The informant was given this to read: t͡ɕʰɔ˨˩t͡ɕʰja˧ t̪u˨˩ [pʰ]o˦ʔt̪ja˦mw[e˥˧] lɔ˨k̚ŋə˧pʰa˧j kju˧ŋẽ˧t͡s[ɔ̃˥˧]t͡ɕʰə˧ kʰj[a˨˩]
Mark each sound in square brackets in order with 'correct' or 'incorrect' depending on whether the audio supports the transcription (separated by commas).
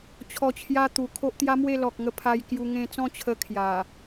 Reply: incorrect, correct, correct, correct